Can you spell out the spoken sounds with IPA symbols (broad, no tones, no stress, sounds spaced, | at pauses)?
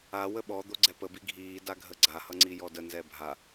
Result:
a w ə ɓ ɔ d̪ o ɡ͡ǀ ɛ p ə b i ɡʱ iː d a ɡʱ ə ɡ͡ǀ a h ʌ ŋ͡ǀ i j ɔ d ə n z ɛ bʱ a